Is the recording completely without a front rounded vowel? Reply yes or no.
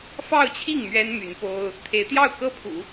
no